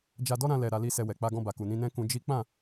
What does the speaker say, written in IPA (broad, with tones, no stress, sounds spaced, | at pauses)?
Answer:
d͡ʒ a˧ d ɔ˦ ɾ ã˧ l ɛ˨ ɾ a˨˦ l i˦ s ɛ˧ w ɛ˨ k͡p a˧ ɡ ɔ̃˧ b a˨ k u˨ n ĩ˧ n ɛ̃˦ k ũ˧ d͡ʒ i˦ k͡p ã˦˨